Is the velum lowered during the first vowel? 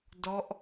no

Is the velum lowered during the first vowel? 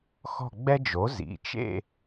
no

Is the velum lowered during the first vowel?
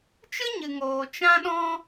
no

